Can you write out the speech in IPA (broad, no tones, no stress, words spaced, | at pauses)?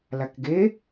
lakɡe